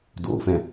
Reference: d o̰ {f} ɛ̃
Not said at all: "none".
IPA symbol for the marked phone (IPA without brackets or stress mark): f